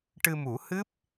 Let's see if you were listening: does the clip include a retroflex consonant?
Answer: yes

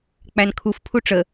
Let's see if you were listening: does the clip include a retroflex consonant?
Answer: yes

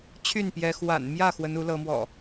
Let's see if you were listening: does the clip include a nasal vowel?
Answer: no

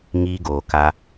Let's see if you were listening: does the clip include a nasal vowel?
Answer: no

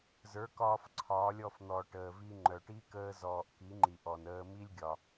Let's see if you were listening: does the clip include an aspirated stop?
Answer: yes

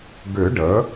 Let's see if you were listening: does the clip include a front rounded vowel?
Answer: yes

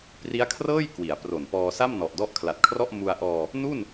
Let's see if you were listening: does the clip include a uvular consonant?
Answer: no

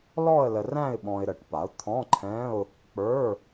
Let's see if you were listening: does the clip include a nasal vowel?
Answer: yes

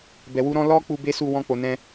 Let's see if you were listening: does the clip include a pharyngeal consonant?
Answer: no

